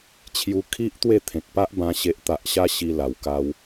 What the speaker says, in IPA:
t͡ɕʰju˧kʰi˦ʔt̪we˥˧ t̪ʰẽ˨k̚pa˦ʔbã˧ ɕe˨ʔt̪a˨ʔɕa˧ ɕi˦la˧wka˦w

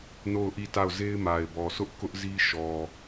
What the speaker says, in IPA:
no˦˨ʊ̯ʔi˦˨ta˦˨ʊ̯ ze˦ɪ̯ma˨ɪ̯bɔ˨sʰʊ˦ʔ kʊ˦ʔzi˦ʃɔ˨

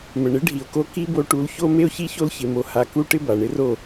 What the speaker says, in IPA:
mə˨ɳɪ˨˦ ɖʱi˨o̯ko˧ ki˦bo˧ʈu˧l ço˦ me˧o̯çi˧ço˧l çɪ˧mo˧ ha˧ku˦ ʈɪ˦ba˨ɳɪ˦ro˦˨

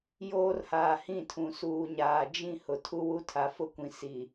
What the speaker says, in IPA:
joː˦rhaː˨hĩ˦˨tʰũ˨ suː˨ɲaː˨ d͡ʒĩ˦˨ hʊ˨tʰu˦wu˦tʰa˨ fʊ˦kʷĩ˨ si˨

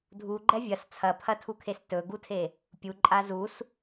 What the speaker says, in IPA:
dʱuɡ͡ǃɛ vʲɐs t͡sʰɐpʰɐtʰukʰes tɵɡutʰe | pʲuǃʼa zus

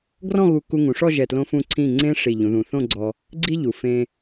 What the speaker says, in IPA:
ɡrɔ̃˥˧ɣu˧ku˧ ŋũ˩˧ʂɔ˥˧ʒɛ˧˩tlõ˧ fũ˧˩ǀʰĩ˧˩ŋ͡ǀẽ˧ ʂi˧˩ ʎũ˩˧ðũ˩˧θõ˥˧ɡ͡ǀɔ˧ | ɡ͡ǀi˥ʎu˩˧fẽ˧

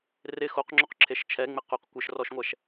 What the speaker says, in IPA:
rɪ xoqŋ͡ǁoqǁʰeʃ t͡ʃʰɛŋ͡mɪ qʊq kʷɪʃrɔʃŋʷɛʃ

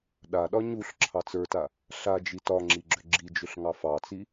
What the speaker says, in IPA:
ɗaɗɒ ɲuɬ ǁʰɑt͡sə˞ta | ɬad͡ʒi tɒŋ͡ǁiɡ͡ǁʏ ɡ͡ǁid͡ʒʏɬ ŋɑfɑt͡si

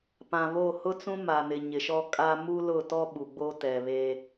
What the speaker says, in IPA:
pã˨βo˦˨ hʊ˦t͡sũ˦ma˨nɪ˨ ɲɪ˨ʃɔ˦ kʼa˦ mu˦lʊ˦˨tɔ˦ ɓu˨ɡ͡bo˦tɛ˨βe˦

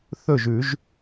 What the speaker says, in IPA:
θɵ˥˩ʒʉ˨˩˦ʒ

